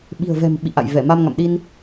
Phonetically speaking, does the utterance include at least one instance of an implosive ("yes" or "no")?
yes